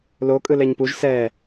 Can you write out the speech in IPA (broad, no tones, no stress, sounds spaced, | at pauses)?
l o kʼ ɯ l ɛ ɲ p u ʒ s ɛː